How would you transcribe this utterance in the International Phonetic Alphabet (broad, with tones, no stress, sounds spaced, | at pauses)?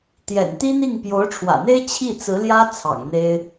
t̪ j ɛ̰˨˩ n t̪ i˥ n̪ i˥˩ ŋ p j o˧˥ ʊ̯ ʈ͡ʂʰ w ä̰˨˩ n̪ e˥ ɪ̯ t͡ɕʰ i˥˩ t͡s ɹ̩˧˥ l j ä˥ t͡sʰ ɑ̰˨˩ ŋ n̪ e˥ ɪ̯